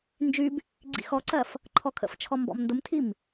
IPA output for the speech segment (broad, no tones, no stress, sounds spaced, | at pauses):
n d͡ʒ y b | ɡ͡ǀ ḭ x ɔ ǀ ɜ f | ǃʰ ɔ kʰ ə̰ f t͡ʃʰ ɔ m b ɔ̰ m n d ʊ m tʰ i m